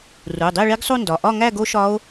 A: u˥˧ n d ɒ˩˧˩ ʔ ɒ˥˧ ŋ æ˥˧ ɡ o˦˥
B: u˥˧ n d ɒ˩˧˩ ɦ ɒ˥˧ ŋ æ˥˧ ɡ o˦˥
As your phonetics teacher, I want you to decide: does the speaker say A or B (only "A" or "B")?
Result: A